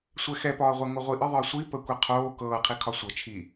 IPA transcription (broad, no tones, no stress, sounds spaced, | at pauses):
sʷ ɛ x ɛ p ɒː ʁʷ ɛ ŋ o ʁʷ i ʔ ə ðˤ ɤ sʷ i p ə kʷ i qʰ oː k ɤː qʰ i kʰ ɒ sʷ ɤ t͡ʃʰ i